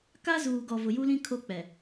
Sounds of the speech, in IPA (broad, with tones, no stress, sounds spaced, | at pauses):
k a˦ z uː˨ ɡ ɔ˨ v ʊ˨ j u˦ l ĩ˦ kʰ o˦ k͡p ɛ˨